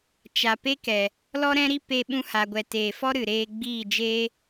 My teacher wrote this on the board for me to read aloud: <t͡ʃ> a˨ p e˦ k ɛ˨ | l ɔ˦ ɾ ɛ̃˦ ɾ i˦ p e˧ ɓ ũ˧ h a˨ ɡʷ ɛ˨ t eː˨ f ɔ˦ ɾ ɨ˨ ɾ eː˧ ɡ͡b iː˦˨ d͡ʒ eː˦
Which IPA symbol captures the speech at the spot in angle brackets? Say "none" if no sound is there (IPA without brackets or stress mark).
t͡ʃ